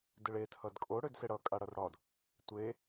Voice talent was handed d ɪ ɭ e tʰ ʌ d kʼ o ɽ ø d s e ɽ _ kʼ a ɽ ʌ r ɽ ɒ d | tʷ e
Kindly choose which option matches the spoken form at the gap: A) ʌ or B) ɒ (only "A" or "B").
A